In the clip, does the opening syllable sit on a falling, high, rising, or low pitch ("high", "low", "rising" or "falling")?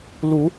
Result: rising